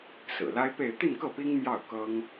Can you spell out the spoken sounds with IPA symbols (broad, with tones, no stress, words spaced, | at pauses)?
sɹ̩˨˩la˥ɪ̯pe˥˧ɪ̯ t̪i˥˧nkɤ˥˩ pi˥ŋ mjɑ˥˩ʊ̯kɤ˥ŋ